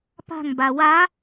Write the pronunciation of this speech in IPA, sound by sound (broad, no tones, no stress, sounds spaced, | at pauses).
p a̤ ŋ b a w a